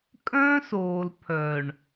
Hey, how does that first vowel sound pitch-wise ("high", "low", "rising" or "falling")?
high